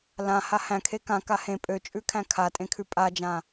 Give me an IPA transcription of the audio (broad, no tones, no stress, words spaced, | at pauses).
lã hahæ̃kʰe kãka hẽ pʼøt͡ʃʼʉ kʰæ̃kʰatʼẽ kʰʉpʼad͡ʒã